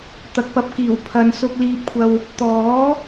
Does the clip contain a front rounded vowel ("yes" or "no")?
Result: no